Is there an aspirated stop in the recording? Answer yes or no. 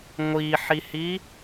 no